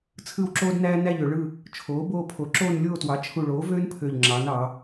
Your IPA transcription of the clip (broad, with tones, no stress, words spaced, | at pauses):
t͡sʰɯ˦˨wǁoː˦dnæː˦ næ˦˨ʎø˩˧ɭɯ˦˨ | t͡ʃʰoː˩˥boː˦˨pʰo˩˥ ǁoː˦˨nlʲoː˦˨twɑ˩˥ t͡ʃʰu˨˩ɭoː˩˥vøː˦npʰø˨˩ʎ ŋ͡ǁɑ˩˧nɑ˩˧